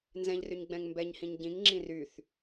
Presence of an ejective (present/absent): absent